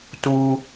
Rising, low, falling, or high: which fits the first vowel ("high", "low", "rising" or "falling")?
high